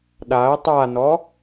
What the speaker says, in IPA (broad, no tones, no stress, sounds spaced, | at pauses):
ɗ a ə̯ tˤ a n ɔ